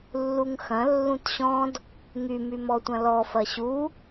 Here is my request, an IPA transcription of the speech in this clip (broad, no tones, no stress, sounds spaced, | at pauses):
lː u ŋ x ɐ̃ lː ũ t ɕ ɔ̃ d | ŋ y m y m ɔ tʷ ɐ̃ l ɔ f ɐ ɕ u